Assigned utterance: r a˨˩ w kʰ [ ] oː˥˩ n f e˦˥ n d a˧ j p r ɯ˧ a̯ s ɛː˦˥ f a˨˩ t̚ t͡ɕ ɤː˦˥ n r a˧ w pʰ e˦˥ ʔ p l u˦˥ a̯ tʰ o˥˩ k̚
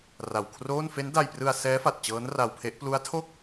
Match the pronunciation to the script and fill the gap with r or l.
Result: r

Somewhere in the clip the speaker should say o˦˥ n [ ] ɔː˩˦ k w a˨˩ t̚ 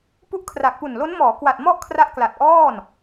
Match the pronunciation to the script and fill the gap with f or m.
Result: m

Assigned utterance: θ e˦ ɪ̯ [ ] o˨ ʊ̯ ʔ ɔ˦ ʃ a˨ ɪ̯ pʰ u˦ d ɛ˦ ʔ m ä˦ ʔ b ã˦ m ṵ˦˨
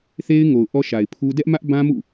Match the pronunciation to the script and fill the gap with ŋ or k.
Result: ŋ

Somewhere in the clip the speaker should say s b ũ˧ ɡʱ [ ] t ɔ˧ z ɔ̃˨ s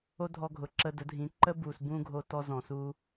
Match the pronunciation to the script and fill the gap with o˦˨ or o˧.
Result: o˧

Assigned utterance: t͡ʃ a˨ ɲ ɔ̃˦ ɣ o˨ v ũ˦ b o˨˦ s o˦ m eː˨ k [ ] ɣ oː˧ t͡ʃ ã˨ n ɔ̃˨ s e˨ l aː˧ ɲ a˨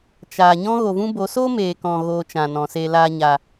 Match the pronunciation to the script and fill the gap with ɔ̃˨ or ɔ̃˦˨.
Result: ɔ̃˨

